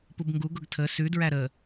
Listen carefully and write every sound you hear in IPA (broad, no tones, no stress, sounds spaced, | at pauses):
p u b ŋ ɡ u ɡ ʊ ɡ tʰ ə s ʉ d ɹ æ ɾ ə